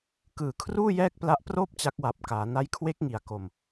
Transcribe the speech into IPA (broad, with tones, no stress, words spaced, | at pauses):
kɯː˨˩kʰruː˥˩ jɛː˥˩k̚pla˦˥ʔproː˥˩p̚ t͡ɕa˦˥k̚wa˨˩p̚kaː˩˦ na˦˥jkʰwe˦˥k̚ ŋi˩˦a̯ko˨˩m